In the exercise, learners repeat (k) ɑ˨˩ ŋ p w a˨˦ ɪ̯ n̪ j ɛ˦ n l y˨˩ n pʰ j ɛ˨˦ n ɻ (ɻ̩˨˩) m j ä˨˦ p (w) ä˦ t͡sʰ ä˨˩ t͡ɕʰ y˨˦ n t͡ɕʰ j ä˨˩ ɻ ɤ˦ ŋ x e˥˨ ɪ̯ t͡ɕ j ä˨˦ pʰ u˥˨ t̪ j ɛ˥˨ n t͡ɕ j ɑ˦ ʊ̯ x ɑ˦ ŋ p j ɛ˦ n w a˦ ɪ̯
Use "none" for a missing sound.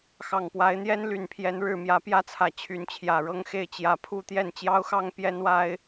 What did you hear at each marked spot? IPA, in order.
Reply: x, ɻ̩˥˨, j

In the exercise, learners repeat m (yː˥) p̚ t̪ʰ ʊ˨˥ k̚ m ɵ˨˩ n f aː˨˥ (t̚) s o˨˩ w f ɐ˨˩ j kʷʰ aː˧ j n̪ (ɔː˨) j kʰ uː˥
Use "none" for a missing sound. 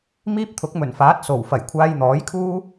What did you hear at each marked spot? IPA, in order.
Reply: iː˥, t̚, ɔː˨˥

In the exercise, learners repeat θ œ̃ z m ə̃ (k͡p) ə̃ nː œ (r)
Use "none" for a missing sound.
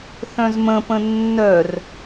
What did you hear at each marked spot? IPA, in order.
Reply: p, r

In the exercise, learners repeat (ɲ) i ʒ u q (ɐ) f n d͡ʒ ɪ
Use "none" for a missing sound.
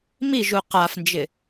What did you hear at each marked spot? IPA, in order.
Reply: m, a

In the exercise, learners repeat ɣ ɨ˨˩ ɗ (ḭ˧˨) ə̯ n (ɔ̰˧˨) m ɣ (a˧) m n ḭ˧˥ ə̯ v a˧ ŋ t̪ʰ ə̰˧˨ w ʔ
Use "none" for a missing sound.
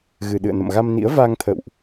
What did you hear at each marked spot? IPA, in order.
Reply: ɨ̰˧˨, ə̰˧˨, a˧

